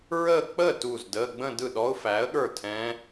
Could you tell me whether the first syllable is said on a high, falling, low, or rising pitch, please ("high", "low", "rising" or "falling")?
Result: falling